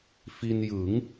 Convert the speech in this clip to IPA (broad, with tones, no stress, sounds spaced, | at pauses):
f i˧ n j ɯ˩˦ ŋ